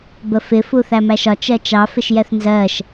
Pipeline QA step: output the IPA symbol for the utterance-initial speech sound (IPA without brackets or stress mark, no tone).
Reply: b